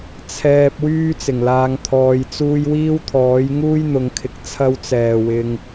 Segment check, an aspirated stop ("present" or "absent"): present